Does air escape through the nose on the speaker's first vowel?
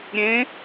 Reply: yes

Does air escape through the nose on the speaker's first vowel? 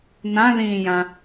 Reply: yes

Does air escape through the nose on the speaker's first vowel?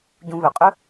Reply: yes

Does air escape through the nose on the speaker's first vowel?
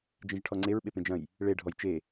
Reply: yes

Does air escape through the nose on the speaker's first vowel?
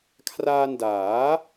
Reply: no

